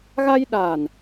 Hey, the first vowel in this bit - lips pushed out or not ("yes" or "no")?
no